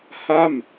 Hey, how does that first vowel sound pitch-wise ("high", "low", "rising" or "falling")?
falling